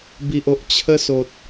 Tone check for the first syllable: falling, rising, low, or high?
low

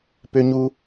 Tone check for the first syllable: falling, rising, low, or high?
high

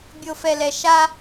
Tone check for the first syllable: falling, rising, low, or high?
low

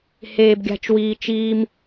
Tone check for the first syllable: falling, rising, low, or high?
high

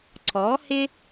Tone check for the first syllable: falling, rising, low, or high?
rising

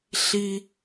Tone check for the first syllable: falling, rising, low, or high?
high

